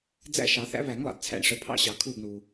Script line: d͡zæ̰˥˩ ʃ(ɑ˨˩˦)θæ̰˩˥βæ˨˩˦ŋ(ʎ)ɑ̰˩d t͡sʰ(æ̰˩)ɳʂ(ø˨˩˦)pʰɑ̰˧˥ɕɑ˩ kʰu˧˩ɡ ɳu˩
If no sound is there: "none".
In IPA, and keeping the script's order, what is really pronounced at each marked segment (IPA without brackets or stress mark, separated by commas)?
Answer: ɑ˨˩˦, lˠ, æ̰˩, ə˨˩˦